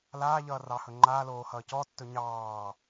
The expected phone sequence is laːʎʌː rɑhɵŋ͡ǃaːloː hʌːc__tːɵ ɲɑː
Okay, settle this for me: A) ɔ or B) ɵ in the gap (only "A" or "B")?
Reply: A